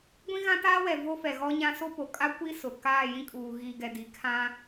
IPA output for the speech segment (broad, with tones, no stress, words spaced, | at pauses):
ɡʷĩ˦ɣã˦taː˦wɛ˨ vo˦fɛ˨ɣɔ˦ɲã˦ so˦po˨ kʼa˦kʷi˦ sʊ˨ kaː˦˨ jĩ˦kʼuː˨ ɣiː˨ɡɛ˨ di˨ kʰã˦